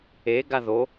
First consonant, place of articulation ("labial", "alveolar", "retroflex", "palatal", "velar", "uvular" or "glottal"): velar